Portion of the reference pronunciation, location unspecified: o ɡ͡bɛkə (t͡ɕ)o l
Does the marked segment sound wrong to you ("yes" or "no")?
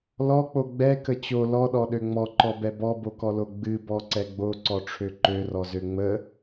no